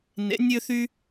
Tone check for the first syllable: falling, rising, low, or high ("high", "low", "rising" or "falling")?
rising